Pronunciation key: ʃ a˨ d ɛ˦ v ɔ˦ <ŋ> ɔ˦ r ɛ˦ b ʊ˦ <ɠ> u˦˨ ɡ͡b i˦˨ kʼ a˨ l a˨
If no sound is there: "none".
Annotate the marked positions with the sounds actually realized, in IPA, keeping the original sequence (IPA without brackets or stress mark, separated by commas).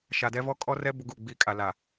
kʼ, ɡ